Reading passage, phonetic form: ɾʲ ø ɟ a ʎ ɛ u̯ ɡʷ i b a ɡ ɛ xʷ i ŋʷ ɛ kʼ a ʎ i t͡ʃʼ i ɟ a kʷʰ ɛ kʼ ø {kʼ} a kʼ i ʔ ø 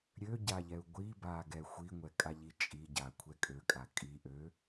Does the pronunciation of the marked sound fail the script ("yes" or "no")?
no